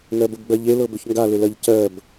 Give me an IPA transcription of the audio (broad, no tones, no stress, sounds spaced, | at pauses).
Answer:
ŋ ɜ b ə b ɡ͡b ɜ ʎ e l ɤ b ʏ ç ŋ ɡ a l ʏ l ɜ ʎ c ɜ b